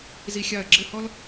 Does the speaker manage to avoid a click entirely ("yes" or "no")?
no